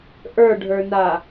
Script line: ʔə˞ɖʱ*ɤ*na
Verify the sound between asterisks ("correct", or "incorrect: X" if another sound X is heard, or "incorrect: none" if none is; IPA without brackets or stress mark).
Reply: incorrect: ə˞